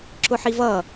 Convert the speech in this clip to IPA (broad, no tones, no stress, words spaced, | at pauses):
ǁʊħivʌ